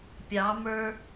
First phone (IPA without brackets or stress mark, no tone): pʲ